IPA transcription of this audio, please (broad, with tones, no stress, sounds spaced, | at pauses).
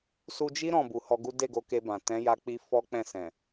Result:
s u˧ d͡ʒ i˦ ɾ ɔ̃˦˨ b u˨ h ɔ˧ ɡ u˦ d e˦˨ ɡ o˨˦ k e˧ b ã˨ t ɛ̃˨˦ j a˧ k͡p i˧ f ɔ˦ k͡p ɛ̃˦˨ s ɛ̃˨